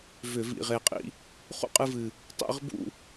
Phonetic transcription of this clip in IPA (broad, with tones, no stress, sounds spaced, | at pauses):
v ʏ˧˩˧ v ḭ˨˩ ʁ e˨˩ qʼ ḭ˧ | χ ṵ˥˧ qʼ ɨ˧ v ɨ˨˩ | tˤ ḭ˥˧ ʁ b ṵ˥˧